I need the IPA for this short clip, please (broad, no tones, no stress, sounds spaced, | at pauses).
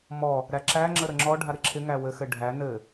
m ɔ | ɾ æ ǁ æ ŋ͡ǁ ə ɾ ə ŋ͡ǁ ɔ ɖʱ a ɾ ɪ ǁʰ ɪ ŋ æ w ɘ x ɘ ɖʱ æ n ɘ